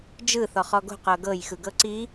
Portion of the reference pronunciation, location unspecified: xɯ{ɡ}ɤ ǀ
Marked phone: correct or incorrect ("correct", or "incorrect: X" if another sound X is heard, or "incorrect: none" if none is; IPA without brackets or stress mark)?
correct